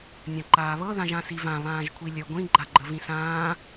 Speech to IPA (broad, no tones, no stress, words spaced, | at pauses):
nʲãǃaːβɤ ðãʒãsivã βãːʒkʷʰilʲə ɡʷĩ ɡ͡ǃaɡ͡ǃəvĩsãː